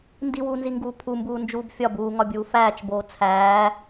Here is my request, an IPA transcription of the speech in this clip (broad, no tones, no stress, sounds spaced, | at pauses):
n d i w uː n z i ŋ ɡ uː pʰ u m b uː n d͡ʒ uː b fʲ ɒ b uː ŋ ɒ bʲ uː f æː t͡ʃ b oː t͡sʰ æː